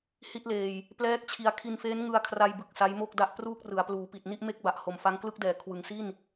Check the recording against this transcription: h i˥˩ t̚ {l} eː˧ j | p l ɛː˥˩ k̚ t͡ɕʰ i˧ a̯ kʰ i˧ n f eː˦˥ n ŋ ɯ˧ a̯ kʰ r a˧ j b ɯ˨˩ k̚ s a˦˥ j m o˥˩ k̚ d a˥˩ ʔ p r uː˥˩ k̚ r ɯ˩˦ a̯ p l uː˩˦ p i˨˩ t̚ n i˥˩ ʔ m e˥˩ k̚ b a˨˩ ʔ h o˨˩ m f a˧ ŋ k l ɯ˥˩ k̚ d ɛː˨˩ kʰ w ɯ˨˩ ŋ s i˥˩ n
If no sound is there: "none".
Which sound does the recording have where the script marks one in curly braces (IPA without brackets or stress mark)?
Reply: l